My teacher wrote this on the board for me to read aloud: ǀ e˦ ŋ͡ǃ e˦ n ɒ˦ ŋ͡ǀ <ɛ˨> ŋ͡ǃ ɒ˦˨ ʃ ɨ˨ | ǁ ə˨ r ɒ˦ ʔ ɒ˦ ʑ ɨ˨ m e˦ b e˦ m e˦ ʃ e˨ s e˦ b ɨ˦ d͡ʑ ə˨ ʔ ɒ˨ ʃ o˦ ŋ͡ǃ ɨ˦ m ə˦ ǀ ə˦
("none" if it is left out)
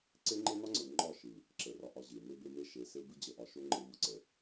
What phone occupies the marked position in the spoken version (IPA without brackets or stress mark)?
ə˨